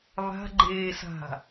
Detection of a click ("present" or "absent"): present